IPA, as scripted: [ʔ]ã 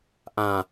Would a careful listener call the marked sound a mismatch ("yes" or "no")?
no